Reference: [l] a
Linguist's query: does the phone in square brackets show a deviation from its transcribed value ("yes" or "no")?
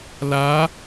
no